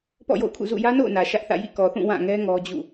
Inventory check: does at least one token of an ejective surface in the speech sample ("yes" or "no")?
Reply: no